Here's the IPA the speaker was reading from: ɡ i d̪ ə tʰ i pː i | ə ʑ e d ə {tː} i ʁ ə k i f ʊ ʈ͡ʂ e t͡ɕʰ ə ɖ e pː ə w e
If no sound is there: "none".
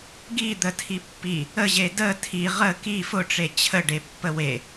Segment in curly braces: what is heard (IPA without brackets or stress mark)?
tʰ